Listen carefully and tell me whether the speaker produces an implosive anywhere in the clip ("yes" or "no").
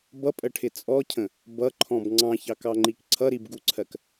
no